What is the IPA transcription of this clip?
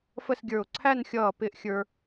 fə˥˧sɡʲə˞˧˩ʊ̯ ǀʰæ˥˧nxʲʌː˧˩ pɪ˥˧ʔ xʲə˞˧

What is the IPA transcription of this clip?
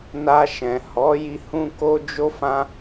na˧ ʃɛ̃˨hɔ˨˦ji˧ hũ˦ko˦ d͡ʒo˧fã˧

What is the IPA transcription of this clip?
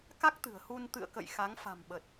ka˦˥k̚t̪ɨ̤˨˩ə̯hu˧n t̪ɨ̰˧˨ə̯kə̰˧˨j xa˨˦ŋfa̤˨˩mɓə˨˩t̚

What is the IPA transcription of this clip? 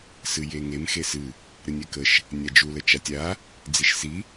sɨjeŋem xesɨ | ɾɨnʲɛkəʃ | nʲad͡ʒu lət͡ʃatʲa | d͡ziʃsi

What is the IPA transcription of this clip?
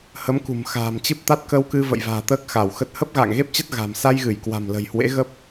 hə˨˦mkṳ˨˩m xa̤ː˨˩mt͡ɕɨ˦˥p̚ t̪a˦˥t̚kə˧wkɨ˧ və̰˧˨jva̤ː˨˩ t̪əː˦˥k̚xa˧˩wxə˦˥t̚ hə˦˥p̚ɣa̰ː˧˨ŋɣe˦˥p̚t͡ɕə˦˥t̚ ɣa̤˨˩m sa˧jɣɨ˧˩jkwa̤˨˩m lə̤˨˩jhwḛ˧˥ɣə˦˥p̚

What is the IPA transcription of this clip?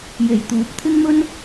je˨˩jt̪uː˨˥p̚t̪ʰɪ˥ŋmɵ˥n

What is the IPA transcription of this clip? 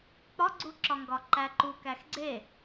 k͡pɒɡ͡ǀuǁɒŋɡɒ ǃæǃu kæxɡ͡ǀe

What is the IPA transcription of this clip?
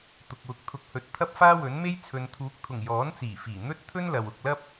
t̪ʊ˨k̚wʊ˨˥k̚ t̪ʰʊ˨˥k̚hɵ˨t̚ t̪ʰɐ˥p̚faː˥wɵ˨˥nme˥j t͡sʰɵ˨nt̪ʰuː˨˥k̚t̪ʰʊ˨˩ŋ jɔː˨˥nt͡siː˨˩fiː˨˩ n̪ɵ˥t̚ t̪ʰɵ˥nlɐ˨w ʊ˨k̚lɐ˥p̚

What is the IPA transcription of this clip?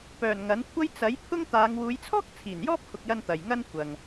pœː˨˩n ŋɐ˨˥nkʷʰɐ˥j t͡sɐ˨˥j pʰʊ˥ŋt̪aː˨˧ŋ wuː˨˧jt͡sʰɔː˥k̚ t͡sʰiː˨˩njɔː˥p̚kʰʊ˨k̚jɐ˧n t̪ɐ˨jŋɐ˥n kʷɐ˨ŋ

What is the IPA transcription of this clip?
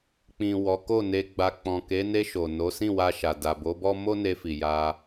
k͡pĩ˨ wɔ˨˦ko˦˨ne˧ɡ͡ba˧ k͡pɔ̃˨ ke˨˦ne˧ʃo˨ no˨˦sĩ˦˨wa˧ʃa˨ da˨bo˨˦bɔ˦ mo˦ne˧fi˨ ja˧

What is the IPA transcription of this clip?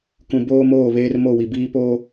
kũ˨ boː˦moː˦˨βeː˦r mo˦˨wi˨biː˦ po˦

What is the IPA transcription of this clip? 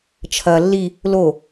t͡ʃʰɐ lːi | lo

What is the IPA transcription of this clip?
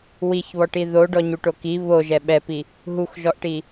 wiçβɔʈi ðoɖɔɲuʈo ki βoʒɛ ɓɛpi | ɦuxʒɔʔʈi

